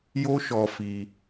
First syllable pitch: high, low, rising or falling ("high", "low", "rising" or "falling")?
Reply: high